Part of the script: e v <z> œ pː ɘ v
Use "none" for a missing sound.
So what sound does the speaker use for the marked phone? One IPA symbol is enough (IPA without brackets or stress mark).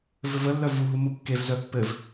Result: z